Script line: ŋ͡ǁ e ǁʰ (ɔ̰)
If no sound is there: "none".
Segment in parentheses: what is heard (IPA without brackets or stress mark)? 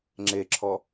ɔ